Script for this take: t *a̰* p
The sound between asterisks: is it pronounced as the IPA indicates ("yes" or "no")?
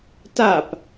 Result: no